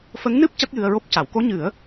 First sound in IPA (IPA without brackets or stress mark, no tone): f